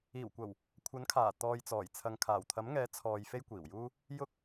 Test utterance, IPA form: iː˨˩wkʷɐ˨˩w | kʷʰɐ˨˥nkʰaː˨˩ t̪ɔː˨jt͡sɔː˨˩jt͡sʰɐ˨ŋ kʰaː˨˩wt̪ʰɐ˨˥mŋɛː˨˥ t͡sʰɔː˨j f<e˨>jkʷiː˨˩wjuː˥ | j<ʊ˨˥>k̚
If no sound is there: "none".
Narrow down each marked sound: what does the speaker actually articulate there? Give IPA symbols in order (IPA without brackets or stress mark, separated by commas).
e˥, ʊ˧